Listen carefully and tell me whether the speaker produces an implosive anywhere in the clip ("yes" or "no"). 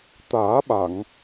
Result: yes